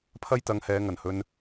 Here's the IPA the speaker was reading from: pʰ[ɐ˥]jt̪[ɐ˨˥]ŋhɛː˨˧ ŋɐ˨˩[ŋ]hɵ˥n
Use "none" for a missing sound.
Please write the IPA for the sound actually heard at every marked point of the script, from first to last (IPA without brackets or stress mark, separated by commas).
ɐ˥, ɐ˨˧, n